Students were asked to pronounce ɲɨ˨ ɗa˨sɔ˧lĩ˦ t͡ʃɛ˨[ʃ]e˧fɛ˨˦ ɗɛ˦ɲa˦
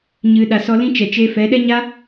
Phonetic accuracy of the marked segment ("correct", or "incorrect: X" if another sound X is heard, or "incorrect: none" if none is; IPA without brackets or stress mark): incorrect: t͡ʃ